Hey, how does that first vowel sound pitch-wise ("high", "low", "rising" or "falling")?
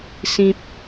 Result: high